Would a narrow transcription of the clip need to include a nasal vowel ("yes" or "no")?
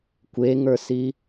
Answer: no